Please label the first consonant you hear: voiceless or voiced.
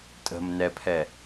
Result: voiceless